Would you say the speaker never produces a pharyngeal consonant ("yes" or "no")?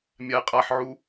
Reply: no